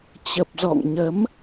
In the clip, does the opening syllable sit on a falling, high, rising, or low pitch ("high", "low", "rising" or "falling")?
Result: low